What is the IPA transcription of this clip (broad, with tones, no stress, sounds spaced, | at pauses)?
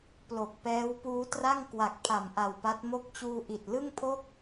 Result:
p l o˨˩ k̚ p ɛː˦˥ w p uː˦˥ t r a˥˩ ŋ k w a˨˩ k̚ pʰ a˨˩ m ʔ a˨˩ w p a˦˥ t̚ m o˦˥ k̚ t͡ɕ uː˧ ʔ i˨˩ t̚ l ɯ˥˩ ŋ pʰ o˥˩ k̚